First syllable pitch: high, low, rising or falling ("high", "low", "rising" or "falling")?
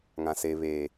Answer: low